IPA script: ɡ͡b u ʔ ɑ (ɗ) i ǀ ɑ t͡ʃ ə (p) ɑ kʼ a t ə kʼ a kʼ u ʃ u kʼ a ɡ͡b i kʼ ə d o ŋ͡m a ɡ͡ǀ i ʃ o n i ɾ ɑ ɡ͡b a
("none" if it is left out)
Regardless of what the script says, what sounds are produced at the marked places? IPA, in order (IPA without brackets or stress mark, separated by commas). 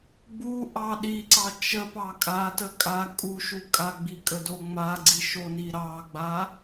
ɗ, p